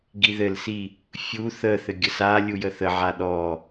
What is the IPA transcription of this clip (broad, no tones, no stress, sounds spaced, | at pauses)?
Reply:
ɡ i ð ɘ l s i | fʲ u θ ə θ ɘ ɡʲ ə s a lʲ u j ə θ ə ʕ a ɗ ɔ